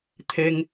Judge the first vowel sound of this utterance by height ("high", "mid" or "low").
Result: mid